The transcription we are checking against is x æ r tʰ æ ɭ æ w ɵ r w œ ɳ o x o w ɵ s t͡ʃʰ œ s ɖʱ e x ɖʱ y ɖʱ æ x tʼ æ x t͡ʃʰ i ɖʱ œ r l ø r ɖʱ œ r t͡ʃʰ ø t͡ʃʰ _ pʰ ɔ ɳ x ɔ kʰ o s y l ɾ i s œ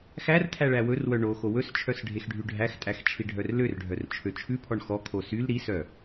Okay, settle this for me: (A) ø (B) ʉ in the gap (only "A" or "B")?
B